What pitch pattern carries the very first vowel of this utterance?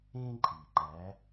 high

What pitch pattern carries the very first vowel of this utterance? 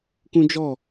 high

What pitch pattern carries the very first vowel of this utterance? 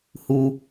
low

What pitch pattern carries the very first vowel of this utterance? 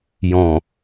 low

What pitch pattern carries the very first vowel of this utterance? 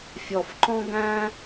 low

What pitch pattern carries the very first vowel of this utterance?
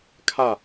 falling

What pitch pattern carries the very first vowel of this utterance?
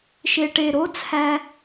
low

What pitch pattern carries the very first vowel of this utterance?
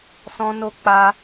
high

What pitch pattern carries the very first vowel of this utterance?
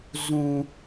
low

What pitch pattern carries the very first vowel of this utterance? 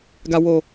low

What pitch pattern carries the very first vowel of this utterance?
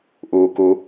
low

